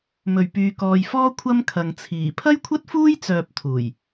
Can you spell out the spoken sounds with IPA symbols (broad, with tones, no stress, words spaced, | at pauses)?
mɵ˨˩ɥpyː˨kɔː˨jfɔː˥ kʷʰɐ˥m kʰɐ˨ŋt͡sʰiː˨˩ pʰɐ˥jkʷʰɐ˥t̚fuː˥j t͡sœː˧p̚t̪ʰuː˨˩j